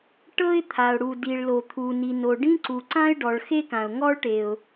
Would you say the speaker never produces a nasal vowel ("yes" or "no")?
no